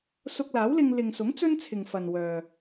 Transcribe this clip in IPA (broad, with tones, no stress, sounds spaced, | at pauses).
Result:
s ʊ˧ k̚ l aː˨˥ w l ɪ˧ ŋ l ɪ˨ ŋ s ʊ˨˥ ŋ t͡s ɵ˥ n t͡sʰ ɪ˨ ŋ f ɐ˨ n w œː˨